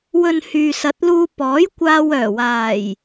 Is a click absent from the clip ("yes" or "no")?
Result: yes